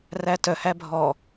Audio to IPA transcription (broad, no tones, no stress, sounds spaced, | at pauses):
r æ t œ h æ bʱ ɔ